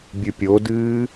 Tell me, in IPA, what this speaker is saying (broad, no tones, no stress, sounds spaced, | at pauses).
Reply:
bʲ ɨ pʲ o d ɨː